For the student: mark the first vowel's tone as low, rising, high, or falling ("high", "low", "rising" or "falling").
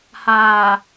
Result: low